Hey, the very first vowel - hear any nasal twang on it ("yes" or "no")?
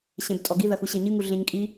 yes